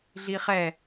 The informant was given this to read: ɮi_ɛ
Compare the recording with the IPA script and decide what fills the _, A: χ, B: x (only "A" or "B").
A